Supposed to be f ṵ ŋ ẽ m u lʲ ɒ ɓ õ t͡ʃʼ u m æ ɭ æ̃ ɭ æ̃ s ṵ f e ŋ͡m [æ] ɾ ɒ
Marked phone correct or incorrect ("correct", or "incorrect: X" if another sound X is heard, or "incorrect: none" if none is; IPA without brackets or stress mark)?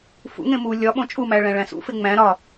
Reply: incorrect: æ̃